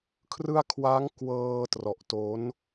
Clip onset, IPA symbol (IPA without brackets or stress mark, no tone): kʰ